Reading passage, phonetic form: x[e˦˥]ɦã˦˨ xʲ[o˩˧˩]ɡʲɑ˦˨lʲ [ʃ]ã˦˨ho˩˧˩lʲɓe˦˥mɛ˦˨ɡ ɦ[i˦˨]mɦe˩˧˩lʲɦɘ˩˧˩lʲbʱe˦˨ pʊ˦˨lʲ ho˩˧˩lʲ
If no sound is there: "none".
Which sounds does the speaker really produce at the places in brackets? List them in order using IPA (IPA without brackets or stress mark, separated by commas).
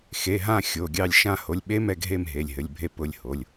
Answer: e˩˧˩, o˩˧˩, ʃ, e˦˨